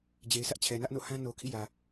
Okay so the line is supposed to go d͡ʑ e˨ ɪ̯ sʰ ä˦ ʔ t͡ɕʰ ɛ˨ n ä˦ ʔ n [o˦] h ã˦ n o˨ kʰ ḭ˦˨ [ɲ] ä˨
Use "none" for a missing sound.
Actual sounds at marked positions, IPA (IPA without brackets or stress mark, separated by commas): o̰˦˨, j